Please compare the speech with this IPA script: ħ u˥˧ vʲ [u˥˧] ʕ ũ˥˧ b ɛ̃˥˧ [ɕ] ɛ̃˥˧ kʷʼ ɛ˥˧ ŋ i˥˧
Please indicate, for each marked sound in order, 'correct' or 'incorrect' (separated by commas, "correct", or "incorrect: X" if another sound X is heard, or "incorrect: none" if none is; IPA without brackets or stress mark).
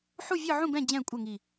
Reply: incorrect: ɯ˥˧, incorrect: d͡ʑ